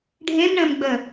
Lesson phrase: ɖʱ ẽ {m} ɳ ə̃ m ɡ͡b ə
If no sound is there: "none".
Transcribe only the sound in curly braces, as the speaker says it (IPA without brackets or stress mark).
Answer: m